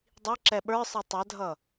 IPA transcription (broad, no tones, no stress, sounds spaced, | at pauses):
dˤ i ǁ ɛ ɓ ə˞ sˤ ə tˤ ɛ dʱ ʌ